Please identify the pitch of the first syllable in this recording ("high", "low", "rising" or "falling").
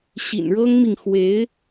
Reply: low